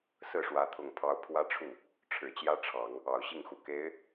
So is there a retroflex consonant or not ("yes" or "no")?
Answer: yes